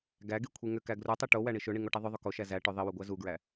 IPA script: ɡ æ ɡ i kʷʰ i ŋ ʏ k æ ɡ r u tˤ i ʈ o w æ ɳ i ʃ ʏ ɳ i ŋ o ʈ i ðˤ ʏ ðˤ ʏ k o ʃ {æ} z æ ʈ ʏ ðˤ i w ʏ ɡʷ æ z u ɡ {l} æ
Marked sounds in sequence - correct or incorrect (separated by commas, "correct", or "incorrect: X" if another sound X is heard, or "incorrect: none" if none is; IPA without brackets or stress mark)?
correct, incorrect: ɹ